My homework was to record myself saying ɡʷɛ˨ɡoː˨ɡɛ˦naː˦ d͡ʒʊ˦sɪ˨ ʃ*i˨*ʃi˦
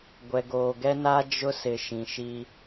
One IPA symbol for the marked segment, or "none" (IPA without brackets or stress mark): ĩ˨